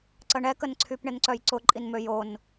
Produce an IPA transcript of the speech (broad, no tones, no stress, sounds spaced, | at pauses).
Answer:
ǀ ə ɳ ɛ k ə n ǀʰ y p ɳ ɪ n ǀ œ j ǀ ʊ ǃʼ i n m ø j o n